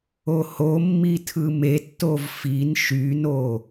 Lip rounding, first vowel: rounded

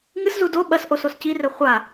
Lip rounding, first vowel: unrounded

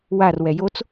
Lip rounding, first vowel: unrounded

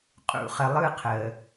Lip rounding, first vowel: rounded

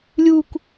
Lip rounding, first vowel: rounded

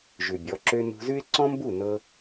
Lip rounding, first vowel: rounded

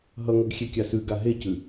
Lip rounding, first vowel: unrounded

